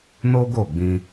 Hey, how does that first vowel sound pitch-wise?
high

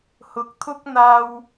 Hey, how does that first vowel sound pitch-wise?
rising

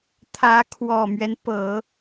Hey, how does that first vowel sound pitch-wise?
rising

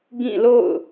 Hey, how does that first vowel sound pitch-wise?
falling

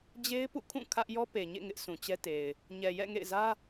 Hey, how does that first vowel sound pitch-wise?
high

